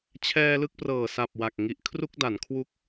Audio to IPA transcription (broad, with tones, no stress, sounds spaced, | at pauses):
t͡ɕʰ ɛː˧ l ɯ˥˩ k̚ p r ɤː˨˩ s a˨˩ p̚ w a˨˩ k̚ ŋ i˨˩ ʔ kʰ r u˥˩ k̚ d a˩˦ n kʰ w u˦˥ k̚